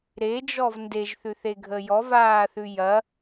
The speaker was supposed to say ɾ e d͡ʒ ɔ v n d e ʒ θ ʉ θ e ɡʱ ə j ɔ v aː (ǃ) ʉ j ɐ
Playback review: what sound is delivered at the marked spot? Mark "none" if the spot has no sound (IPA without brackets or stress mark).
θ